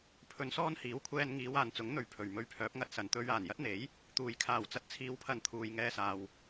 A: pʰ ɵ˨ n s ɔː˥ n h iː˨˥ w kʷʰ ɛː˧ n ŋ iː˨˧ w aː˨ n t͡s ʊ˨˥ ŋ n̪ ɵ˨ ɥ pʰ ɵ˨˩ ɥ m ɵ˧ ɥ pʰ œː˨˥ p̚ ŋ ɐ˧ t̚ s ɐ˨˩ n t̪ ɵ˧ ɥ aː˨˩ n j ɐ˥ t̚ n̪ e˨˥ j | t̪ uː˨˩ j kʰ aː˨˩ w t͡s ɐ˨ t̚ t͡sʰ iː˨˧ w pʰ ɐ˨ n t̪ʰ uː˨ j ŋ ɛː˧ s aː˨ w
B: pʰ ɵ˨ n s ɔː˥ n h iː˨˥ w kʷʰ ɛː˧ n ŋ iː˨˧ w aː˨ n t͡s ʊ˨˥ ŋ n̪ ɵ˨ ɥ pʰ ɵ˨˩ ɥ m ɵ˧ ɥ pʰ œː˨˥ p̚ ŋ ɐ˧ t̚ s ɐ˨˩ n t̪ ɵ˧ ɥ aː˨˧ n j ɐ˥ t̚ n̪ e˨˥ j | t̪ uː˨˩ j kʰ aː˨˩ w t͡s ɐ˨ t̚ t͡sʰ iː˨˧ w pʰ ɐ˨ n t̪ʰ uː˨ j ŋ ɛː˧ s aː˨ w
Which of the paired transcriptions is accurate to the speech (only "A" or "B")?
A